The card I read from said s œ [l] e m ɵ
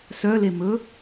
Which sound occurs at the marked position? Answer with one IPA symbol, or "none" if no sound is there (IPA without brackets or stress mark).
l